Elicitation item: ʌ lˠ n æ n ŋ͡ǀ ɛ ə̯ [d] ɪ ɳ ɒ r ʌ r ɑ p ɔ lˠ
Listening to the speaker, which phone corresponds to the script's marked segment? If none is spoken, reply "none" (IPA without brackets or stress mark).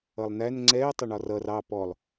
tˤ